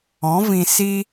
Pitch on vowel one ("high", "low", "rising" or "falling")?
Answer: rising